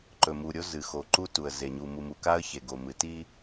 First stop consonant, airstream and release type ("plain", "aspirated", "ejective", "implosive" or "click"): click